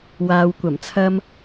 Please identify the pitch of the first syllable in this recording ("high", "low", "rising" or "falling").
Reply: low